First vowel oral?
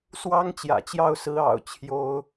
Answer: yes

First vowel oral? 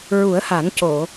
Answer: yes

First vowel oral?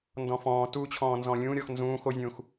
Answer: no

